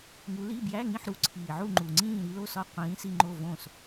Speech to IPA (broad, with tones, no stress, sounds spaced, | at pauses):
ŋ u˨˦ l i˧˥˧ b j æ˧˥˧ ŋ ĩ˦˨ ħ ɾ u˨˦ ǀʰ iː˨˩ ʕ u˦˨ ŋ͡ǃ u˨˩ ŋ͡ǀ ĩː˦˨ ɾ i˨˦ l o˦˨ s ɒ˦˨ qʷ ĩː˨˦ s i˦˨ ŋ͡ǃ o˦˨ v õ˦˨ s